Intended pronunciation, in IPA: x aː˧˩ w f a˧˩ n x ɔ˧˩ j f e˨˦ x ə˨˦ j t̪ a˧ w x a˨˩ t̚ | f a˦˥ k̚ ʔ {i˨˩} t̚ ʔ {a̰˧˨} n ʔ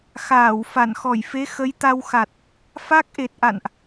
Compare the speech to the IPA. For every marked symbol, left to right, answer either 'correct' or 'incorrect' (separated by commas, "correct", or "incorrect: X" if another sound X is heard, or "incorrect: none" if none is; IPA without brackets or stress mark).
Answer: incorrect: e˨˩, correct